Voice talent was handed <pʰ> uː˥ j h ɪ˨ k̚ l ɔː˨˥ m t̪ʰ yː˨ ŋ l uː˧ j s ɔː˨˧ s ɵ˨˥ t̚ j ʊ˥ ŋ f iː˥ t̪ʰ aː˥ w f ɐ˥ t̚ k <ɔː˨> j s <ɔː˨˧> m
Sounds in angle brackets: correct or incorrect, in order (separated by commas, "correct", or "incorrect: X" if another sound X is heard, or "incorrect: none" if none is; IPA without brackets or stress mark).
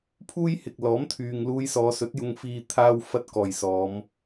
correct, correct, correct